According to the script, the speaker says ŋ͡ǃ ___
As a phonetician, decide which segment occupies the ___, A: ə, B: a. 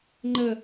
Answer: A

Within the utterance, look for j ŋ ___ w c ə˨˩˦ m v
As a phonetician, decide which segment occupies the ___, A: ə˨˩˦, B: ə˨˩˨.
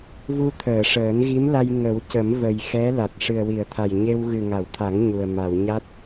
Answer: A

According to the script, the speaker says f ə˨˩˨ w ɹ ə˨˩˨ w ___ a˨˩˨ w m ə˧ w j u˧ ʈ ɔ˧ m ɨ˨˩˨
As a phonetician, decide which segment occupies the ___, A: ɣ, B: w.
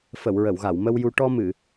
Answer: A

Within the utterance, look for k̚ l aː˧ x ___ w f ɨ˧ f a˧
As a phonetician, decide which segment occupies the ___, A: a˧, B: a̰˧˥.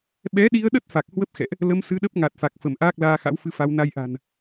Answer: B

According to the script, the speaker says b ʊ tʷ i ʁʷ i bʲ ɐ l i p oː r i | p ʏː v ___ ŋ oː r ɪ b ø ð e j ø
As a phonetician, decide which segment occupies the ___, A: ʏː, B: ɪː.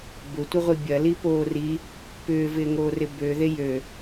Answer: B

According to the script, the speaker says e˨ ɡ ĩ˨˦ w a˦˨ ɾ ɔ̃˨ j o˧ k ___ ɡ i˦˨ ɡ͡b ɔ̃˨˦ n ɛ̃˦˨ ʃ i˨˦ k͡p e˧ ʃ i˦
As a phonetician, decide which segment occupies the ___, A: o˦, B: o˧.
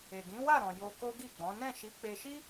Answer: A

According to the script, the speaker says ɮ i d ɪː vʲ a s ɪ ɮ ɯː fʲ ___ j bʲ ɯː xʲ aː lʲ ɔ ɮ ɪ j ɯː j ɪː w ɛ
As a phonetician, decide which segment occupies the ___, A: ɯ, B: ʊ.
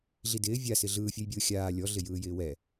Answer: A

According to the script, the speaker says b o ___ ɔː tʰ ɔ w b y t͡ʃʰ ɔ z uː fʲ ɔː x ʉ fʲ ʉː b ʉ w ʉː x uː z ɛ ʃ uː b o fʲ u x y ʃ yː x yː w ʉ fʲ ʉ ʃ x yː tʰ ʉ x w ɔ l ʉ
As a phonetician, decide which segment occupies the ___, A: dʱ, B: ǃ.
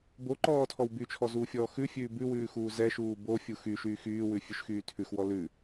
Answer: B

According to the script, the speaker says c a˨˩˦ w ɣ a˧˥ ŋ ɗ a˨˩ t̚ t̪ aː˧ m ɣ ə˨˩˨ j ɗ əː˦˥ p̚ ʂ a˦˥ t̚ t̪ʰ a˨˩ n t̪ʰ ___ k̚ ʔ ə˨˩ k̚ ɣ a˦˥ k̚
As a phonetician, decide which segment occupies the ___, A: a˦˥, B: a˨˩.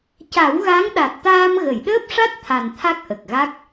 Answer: A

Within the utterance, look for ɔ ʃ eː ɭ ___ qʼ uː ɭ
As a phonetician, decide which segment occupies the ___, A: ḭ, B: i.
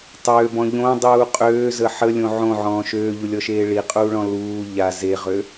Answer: B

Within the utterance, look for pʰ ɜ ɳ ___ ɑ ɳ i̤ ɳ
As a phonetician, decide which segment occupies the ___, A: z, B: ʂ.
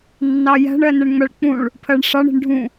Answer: B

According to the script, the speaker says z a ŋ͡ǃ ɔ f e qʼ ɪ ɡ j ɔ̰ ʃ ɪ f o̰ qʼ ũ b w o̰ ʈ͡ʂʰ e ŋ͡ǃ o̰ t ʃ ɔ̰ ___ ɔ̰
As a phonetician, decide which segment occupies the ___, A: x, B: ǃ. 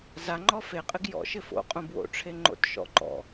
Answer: B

